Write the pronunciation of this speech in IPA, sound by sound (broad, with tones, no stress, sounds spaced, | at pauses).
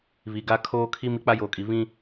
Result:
β i˨ ɡ a˦ kʰ oː˦ kʰ i˦ m i˦ k͡p a˦ j oː˨ kʼ i˨ β ĩ˦